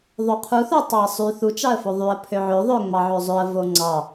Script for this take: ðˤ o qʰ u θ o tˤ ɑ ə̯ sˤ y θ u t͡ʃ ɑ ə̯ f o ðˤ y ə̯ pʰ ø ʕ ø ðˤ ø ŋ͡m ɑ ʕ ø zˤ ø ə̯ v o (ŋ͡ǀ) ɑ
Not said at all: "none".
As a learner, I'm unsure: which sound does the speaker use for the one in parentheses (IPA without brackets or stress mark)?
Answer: ŋ͡ǀ